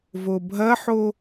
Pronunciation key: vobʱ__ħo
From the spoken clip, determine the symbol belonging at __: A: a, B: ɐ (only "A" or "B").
B